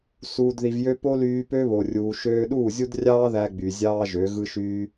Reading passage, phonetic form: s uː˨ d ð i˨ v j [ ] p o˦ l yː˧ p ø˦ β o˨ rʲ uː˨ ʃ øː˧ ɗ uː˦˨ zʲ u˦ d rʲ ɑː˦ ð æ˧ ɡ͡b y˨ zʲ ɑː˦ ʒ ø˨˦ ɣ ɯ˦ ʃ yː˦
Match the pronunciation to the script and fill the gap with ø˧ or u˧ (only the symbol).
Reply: ø˧